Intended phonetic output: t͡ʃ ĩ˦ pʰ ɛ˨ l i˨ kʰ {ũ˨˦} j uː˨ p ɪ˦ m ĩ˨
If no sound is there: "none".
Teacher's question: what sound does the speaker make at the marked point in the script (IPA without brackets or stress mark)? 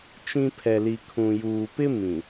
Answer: ũ˨